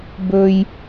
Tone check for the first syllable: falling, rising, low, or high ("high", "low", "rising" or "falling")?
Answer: high